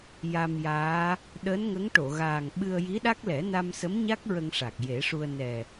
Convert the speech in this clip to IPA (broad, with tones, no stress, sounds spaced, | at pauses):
j a˧ m j aː˧˥ | ɗ əː˧˥ n ŋ ə˧˥ ŋ ʈ o˨˩˨ ɣ aː˨˩ ŋ ɓ ɨ˧ ə̯ j i˧˥ ɗ a˦˥ k̚ l ɛ˨˩˦ n a˧ m s ə˧˥ m ɲ a˦˥ k̚ ɹ ə˧ ŋ ʂ a˨˩ k̚ j e˨˩˦ ʂ u˧ ə̯ n ɛ˨˩